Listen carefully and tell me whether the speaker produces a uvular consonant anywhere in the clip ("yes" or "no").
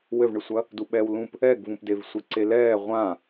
yes